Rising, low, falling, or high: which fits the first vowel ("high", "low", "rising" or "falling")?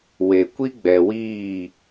low